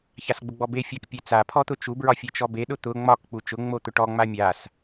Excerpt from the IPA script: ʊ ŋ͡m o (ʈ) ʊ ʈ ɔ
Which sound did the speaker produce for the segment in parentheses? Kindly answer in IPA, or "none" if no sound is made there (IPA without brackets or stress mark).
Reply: t̪